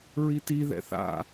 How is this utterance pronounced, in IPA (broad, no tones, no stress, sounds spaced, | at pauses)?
ɹ i t i ð ɛ̰ θ a̰